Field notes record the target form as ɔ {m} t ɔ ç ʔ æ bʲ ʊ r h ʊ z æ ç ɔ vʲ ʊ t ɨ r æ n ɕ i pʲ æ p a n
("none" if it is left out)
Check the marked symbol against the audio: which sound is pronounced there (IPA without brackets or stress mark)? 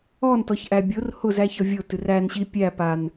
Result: n